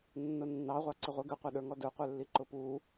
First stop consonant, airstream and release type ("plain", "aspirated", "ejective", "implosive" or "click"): click